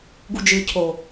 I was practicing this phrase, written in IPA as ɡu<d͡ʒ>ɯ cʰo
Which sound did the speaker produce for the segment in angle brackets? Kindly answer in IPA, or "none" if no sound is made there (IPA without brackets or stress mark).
d͡ʒ